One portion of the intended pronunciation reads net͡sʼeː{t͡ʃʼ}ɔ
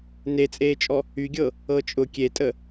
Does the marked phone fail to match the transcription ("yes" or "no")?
no